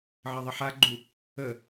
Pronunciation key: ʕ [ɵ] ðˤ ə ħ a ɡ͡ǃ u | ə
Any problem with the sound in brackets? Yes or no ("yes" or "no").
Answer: yes